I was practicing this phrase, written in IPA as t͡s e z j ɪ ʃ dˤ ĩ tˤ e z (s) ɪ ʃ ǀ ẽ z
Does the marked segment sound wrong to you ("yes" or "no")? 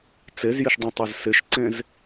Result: no